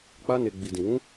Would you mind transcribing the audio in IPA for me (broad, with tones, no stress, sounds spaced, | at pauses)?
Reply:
k͡p a˧ n e˨ ɡ͡b i˨ d ĩ˨ w ũ˨˦